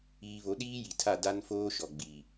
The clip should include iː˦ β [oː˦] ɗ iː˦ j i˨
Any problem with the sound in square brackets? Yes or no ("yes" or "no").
yes